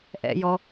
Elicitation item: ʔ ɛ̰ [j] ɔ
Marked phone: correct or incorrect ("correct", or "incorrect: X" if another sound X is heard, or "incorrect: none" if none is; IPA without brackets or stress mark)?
correct